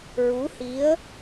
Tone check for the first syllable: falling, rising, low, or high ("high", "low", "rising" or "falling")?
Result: rising